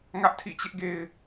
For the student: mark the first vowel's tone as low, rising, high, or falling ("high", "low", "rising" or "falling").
high